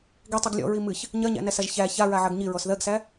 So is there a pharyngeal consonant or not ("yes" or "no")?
yes